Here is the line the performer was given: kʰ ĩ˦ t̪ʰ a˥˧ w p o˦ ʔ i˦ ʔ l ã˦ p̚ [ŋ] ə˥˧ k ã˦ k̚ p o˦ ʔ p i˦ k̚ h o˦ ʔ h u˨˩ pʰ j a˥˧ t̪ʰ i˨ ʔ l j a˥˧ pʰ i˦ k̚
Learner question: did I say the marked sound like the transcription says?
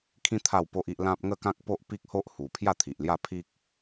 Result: yes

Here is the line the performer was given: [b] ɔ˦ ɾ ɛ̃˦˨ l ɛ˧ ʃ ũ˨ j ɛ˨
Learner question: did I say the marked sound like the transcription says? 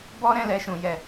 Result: yes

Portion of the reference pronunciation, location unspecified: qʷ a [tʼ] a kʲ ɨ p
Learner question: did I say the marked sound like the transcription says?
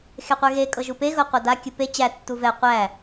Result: no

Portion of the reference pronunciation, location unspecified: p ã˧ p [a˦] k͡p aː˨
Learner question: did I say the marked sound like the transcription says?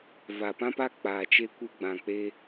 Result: no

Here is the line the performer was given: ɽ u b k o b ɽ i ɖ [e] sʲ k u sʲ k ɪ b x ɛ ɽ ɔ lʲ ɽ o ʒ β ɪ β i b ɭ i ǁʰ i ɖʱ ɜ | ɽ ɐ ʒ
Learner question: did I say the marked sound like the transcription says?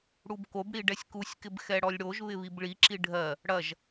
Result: no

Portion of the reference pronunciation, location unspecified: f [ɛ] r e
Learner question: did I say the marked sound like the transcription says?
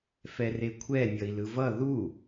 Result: yes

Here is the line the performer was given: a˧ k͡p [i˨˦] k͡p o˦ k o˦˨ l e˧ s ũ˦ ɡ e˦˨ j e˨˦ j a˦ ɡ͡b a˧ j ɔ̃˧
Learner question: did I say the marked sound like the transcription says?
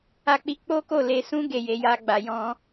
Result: no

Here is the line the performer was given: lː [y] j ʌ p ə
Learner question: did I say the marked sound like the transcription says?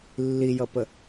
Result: no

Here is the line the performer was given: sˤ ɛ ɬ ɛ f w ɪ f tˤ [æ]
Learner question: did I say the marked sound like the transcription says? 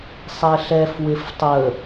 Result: no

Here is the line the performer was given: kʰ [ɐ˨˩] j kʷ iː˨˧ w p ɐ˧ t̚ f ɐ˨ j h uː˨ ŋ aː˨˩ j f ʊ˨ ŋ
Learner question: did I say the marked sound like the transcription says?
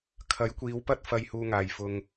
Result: no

